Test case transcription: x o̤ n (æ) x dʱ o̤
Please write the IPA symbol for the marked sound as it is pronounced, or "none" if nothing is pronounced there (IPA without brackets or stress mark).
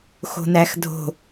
æ